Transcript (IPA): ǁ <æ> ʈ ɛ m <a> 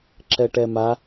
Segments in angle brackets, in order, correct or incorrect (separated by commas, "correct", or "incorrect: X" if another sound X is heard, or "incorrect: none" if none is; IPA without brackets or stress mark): incorrect: ɛ, correct